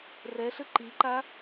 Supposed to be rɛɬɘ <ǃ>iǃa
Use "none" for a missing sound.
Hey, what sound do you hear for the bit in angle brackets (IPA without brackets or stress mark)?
ǃ